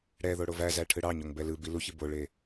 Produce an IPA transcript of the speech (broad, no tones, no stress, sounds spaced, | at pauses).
ɽ ɛ ð o ɽ o v æ z æ ʈʰ ɯ ɽ ɑ ɲ o ŋ b ɛ l ɯ b i l u ç i b o ɭ e